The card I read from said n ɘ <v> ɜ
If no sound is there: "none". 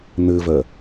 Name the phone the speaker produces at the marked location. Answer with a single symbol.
v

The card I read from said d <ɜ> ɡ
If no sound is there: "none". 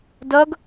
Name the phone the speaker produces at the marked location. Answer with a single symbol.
ɜ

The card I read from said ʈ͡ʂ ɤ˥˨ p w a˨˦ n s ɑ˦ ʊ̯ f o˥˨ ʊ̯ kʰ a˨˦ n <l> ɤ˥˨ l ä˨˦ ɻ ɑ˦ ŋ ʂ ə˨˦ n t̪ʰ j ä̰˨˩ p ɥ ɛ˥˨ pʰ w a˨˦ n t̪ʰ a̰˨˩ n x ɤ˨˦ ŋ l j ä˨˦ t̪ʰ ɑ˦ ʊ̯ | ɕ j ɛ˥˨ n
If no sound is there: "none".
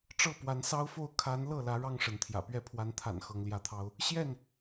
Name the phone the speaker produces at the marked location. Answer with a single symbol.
l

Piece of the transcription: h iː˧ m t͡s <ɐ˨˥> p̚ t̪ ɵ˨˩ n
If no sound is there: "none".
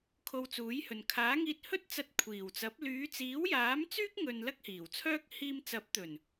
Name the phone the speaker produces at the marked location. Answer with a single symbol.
ɐ˨˥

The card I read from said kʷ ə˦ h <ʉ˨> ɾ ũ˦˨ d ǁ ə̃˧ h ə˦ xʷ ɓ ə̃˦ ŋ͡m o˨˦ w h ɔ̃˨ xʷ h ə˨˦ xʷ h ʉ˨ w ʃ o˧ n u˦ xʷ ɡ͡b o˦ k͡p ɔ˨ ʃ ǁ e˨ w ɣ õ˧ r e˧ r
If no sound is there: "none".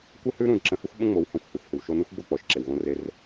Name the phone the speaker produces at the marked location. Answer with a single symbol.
ʉ˦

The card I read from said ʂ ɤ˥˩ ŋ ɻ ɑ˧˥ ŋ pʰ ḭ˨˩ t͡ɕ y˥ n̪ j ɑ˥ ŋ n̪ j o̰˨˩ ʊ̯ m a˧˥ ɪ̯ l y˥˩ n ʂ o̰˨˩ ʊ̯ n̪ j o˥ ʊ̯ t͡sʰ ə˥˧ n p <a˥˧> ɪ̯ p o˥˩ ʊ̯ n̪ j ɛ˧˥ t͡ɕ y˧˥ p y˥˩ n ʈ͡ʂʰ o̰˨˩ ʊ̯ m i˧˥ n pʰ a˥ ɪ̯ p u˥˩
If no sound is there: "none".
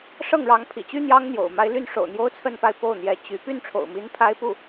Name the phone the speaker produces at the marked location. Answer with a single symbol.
a˥˧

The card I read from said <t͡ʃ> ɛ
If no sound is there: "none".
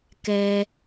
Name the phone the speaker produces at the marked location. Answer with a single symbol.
k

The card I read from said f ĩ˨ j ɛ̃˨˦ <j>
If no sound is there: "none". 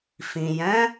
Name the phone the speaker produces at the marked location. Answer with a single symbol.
none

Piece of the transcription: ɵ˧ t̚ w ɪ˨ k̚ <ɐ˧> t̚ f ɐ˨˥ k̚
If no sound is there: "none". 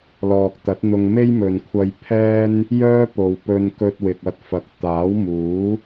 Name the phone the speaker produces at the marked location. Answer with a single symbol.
ɐ˧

